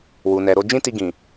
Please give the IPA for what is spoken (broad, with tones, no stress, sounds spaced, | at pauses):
w u˨ n ɛ˨ ɾ o˧ d͡ʒ ĩ˦ t i˧ ɡ ĩ˨